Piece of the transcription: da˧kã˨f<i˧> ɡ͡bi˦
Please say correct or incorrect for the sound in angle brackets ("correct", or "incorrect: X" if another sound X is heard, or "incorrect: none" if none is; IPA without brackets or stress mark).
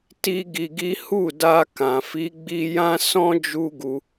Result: incorrect: i˨˦